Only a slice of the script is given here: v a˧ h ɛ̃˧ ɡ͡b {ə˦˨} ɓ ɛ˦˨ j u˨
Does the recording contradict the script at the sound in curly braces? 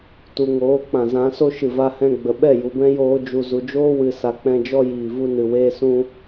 yes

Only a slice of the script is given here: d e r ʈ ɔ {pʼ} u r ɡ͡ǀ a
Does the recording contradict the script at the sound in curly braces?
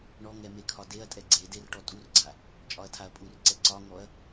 yes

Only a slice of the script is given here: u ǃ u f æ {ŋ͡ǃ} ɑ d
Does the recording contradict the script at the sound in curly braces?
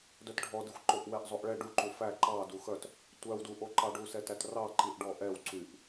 yes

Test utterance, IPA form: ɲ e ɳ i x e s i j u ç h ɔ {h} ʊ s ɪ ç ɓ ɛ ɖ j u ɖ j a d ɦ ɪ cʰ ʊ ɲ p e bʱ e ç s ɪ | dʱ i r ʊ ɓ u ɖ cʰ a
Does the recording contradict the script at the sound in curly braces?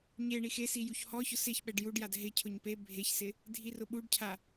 yes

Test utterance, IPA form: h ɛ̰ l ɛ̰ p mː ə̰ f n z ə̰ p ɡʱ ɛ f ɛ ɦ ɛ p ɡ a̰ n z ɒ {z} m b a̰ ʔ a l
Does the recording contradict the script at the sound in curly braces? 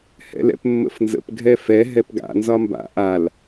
yes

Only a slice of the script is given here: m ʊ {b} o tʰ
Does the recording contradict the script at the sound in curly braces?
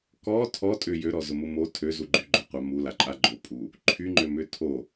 yes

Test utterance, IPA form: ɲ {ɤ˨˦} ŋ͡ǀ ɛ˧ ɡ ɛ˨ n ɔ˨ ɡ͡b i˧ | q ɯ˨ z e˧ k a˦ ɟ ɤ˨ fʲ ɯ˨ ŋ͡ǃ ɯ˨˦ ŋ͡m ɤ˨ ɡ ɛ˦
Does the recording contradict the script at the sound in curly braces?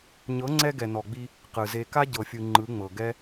no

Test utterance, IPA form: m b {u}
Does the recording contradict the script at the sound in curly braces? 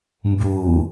yes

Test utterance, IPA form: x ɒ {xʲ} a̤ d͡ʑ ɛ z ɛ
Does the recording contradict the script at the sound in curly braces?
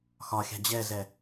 no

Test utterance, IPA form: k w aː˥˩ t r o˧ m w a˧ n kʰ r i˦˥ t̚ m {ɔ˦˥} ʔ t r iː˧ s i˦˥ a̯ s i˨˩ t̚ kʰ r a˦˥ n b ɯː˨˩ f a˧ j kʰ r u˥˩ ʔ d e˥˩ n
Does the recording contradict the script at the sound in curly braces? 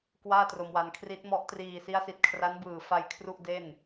no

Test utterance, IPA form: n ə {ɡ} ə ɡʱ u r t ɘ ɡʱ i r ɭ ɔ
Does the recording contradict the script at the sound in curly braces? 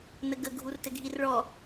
no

